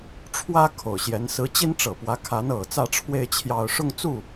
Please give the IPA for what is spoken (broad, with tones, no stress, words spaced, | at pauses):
ʈ͡ʂʰwä˥ kʰo˨˩ʊ̯ɕjɛ˧˥n sɹ̩˧˥t͡ɕi˥n ʈ͡ʂɤ˨˩pwä˧˥ kʰa˧˥nɤ˨˩t͡sä˥˧ʈ͡ʂʰwe˥˧ɪ̯ t͡ɕʰjɑ˥˧ʊ̯ ʂʊ˥˧ŋt͡su˥˩